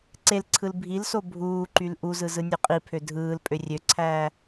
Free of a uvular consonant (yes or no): no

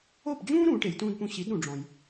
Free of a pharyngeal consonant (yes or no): yes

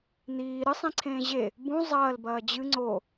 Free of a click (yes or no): no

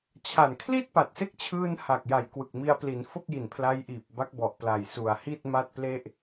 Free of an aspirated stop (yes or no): no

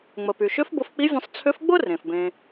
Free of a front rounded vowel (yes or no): no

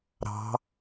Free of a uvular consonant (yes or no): yes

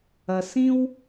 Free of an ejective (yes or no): yes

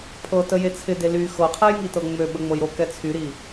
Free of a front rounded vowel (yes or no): no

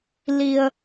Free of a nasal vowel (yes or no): yes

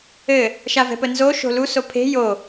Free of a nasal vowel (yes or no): yes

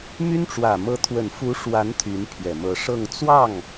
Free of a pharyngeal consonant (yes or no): yes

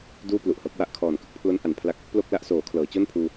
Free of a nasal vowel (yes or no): yes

